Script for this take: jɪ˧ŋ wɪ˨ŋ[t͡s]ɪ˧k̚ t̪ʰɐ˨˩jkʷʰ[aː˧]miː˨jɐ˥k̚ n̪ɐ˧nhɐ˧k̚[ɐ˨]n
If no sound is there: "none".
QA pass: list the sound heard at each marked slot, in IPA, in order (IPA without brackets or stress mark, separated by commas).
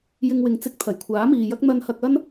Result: t͡s, aː˨˥, ɐ˥